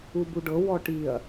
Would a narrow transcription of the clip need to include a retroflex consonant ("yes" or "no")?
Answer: yes